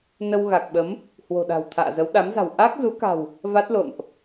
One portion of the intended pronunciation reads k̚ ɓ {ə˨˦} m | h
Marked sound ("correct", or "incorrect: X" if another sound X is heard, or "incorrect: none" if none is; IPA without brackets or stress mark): correct